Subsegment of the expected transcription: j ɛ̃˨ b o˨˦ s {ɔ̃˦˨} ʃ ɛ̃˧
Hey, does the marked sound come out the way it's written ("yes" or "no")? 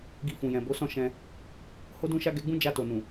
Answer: yes